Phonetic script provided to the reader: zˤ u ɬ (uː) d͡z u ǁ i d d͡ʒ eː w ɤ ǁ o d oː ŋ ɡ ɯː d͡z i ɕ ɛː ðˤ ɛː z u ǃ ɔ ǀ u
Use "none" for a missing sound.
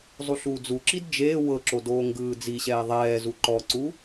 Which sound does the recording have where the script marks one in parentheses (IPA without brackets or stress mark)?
uː